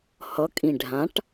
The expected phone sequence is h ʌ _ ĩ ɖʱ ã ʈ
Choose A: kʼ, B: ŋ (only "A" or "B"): A